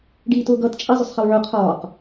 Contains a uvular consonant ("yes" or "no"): yes